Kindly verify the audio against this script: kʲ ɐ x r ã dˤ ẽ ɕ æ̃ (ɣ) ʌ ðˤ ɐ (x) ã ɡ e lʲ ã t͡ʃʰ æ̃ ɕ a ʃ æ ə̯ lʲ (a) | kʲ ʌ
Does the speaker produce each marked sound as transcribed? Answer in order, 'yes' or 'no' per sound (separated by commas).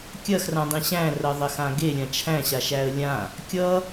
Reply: no, yes, no